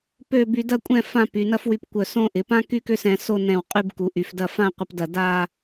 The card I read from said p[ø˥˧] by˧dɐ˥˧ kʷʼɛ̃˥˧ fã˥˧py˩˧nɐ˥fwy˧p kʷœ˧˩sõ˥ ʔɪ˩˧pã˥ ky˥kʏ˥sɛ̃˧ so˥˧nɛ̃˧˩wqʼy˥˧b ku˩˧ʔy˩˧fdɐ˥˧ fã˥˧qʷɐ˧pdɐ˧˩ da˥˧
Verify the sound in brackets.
correct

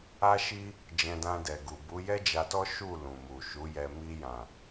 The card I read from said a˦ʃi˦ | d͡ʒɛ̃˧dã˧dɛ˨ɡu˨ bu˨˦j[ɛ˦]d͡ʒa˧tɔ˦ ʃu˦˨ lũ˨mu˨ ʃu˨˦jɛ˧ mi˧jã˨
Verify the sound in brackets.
correct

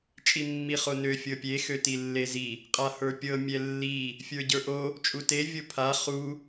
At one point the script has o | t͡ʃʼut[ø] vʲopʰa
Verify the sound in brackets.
incorrect: e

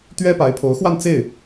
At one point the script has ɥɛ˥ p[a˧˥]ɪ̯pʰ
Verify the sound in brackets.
correct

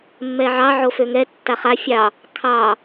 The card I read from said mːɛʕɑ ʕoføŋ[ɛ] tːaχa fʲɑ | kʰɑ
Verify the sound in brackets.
correct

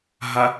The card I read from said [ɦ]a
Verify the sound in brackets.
correct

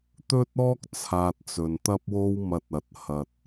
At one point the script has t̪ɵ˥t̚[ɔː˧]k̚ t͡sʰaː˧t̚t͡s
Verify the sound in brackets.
incorrect: ɔː˥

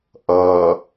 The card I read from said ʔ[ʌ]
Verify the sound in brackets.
correct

